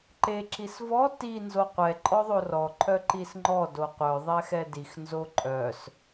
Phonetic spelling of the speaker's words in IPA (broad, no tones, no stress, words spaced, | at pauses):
ǃe ǁisvɔ ti nzoqʷɛ ǃʼɔðˤorɔ ǃʰœǃisŋ͡ǃɔ doqʷœ ðˤɛxɛdix nzoǃʼœs